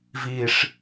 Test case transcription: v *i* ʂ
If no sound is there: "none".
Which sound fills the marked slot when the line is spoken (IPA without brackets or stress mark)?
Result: i